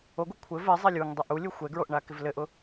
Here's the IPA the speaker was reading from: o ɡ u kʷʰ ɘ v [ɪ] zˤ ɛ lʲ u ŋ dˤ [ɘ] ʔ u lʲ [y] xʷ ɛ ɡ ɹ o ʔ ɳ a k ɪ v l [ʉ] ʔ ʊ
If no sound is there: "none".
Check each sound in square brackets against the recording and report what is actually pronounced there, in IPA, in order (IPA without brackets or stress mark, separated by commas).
ɛ, ɘ, u, ɘ